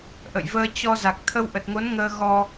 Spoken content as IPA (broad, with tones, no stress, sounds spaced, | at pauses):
ʔ ə̰˧˨ j v əː˧ t͡ɕ ɔ˧ z a˨˩ k̚ t̪ʰ ə˧ w ʔ ə˨˩ t̚ ŋ o˨˦ n ŋ əː˧ ɣ ɔ˧